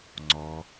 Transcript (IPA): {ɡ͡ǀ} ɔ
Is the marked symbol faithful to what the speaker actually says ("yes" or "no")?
no